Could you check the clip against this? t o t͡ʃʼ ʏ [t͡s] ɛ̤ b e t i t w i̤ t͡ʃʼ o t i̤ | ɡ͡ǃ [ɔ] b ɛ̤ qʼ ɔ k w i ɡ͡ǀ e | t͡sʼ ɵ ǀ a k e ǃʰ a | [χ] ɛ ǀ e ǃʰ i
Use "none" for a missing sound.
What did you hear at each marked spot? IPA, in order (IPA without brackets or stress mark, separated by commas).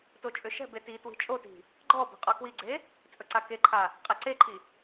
ʃ, ɔ, qʼ